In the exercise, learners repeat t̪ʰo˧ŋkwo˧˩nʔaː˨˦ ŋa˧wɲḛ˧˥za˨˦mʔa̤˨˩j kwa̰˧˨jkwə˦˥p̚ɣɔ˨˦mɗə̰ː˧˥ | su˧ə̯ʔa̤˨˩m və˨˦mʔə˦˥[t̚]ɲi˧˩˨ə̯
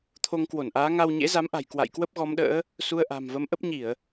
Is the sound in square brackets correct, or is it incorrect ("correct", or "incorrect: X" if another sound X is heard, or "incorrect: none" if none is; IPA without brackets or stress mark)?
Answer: incorrect: p̚